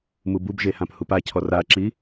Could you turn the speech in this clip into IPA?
mububʒehãp hupacʰɔr aǁi

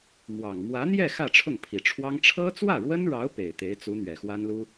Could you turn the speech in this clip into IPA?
mwɑ˨˩ŋ mwä˧˥n̪jɛ˥˧ xä˥˧ʈ͡ʂʰʊ˥˩ŋpʰi˨˩ʈ͡ʂʰwɑ˥ŋ ʈ͡ʂʰɤ˥t͡swä˥˩ɻwə˥nɻɑ˧˥ʊ̯ pe˨˩ɪ̯t̪e˧˥ɪ̯t͡su˧˥n̪ɥɛ˨˩ xwa˥nlu˥

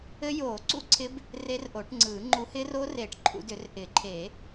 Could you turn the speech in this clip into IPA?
ɘ˦˥joː˨˩˦ǀṵ˥˨ǀʰɪ˦˥b | re˦˥rʔo˨˩˦ʈŋ͡ǀɯː˨˩˦ ŋ͡ǃu˨˦hɪː˦˥r oː˦˥reː˨˩˦ʈ ǃʰṵ˨˦dʏ˨˩˦r ʔɪː˨˩˦ǃʰeː˨˩˦

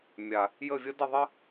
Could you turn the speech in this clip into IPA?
mʲa˨ | jə˦˨vʲə˦ də˦˨ðˤə˦

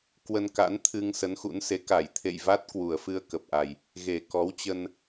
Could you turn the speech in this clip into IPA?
kwə˧nka̰˧˥nt̪ʰɨ˧ŋ sə˨˦nxṵ˧˥nse˨˦ ka˧˩jt̪ʰḛ˧˨jva˦˥t̚ kwu˨˩ə̯fɨ˧ə̯kə˨˩p̚ʔa˨˩j | ɣe˨˩kɔ˨˦wt͡ɕə˧n

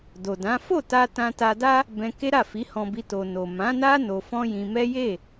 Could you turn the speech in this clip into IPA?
do˨dã˨˦ fo˦˨ta˧ tã˧ta˧da˦ | bɛ̃˧ke˦ɾa˦˨ fi˨˦hɔ̃˧bi˧ to˨no˨ mã˨˦na˦ no˧fɔ̃˦jĩ˧ mɛ˦ je˦˨

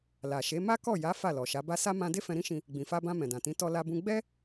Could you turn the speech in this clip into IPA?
la˨ʃe˨˦ ma˦kɔ˦˨ja˨˦ fa˦˨lɔ˨ʃa˨˦ba˦ sa˦ mã˧ de˦fɛ̃˧ɾĩ˦ʃĩ˧ | ɡ͡bĩ˨fa˧bã˧ mɛ̃˨dã˨tĩ˨˦ tɔ˧la˧bũ˧ ɡ͡bɛ˦

